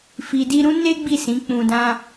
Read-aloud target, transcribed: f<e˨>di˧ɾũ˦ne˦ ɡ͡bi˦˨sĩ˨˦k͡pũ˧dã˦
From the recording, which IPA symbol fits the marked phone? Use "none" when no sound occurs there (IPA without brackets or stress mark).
i˨